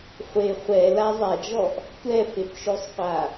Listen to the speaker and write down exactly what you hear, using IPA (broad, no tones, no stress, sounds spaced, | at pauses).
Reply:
χʷ e χʷ ɛ l a zˤ a d͡ʒ ɔ ʔ | tʷ ɛ f e p ʃ o sˤ qʷ a